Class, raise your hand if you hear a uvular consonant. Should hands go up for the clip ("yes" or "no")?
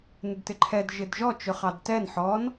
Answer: yes